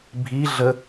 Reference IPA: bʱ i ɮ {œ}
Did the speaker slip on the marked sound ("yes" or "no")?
yes